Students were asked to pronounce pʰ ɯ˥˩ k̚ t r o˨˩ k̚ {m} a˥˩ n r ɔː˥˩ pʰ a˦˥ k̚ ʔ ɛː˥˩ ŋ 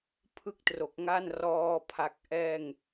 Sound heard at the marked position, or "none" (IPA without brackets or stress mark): ŋ